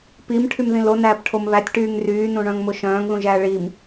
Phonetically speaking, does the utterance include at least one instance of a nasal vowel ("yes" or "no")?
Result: yes